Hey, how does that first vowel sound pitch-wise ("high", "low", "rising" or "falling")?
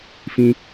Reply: high